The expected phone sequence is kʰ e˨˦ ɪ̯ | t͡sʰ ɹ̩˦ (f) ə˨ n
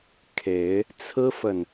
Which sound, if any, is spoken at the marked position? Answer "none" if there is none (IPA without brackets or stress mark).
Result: f